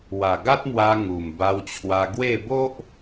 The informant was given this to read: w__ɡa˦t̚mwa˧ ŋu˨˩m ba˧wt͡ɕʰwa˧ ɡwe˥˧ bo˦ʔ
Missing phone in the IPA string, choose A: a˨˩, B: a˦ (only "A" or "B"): A